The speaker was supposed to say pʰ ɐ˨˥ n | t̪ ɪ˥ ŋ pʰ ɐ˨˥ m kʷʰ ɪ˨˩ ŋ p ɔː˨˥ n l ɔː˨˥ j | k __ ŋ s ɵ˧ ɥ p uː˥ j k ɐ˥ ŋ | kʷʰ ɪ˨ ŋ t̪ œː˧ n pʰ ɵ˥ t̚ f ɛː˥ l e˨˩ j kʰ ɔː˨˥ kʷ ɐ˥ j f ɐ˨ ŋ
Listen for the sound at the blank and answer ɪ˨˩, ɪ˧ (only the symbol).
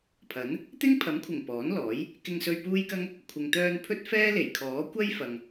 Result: ɪ˧